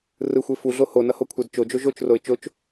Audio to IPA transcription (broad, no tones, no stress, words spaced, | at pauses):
rɯxʷe fuɮo honʌhokʷʰɛd t͡ʃod͡ʒo ʒot͡ʃroɪ̯ t͡ʃot͡ʃ